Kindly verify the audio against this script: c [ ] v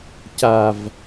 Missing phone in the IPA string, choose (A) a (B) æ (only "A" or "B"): A